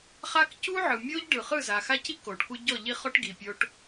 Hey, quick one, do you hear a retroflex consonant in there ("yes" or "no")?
yes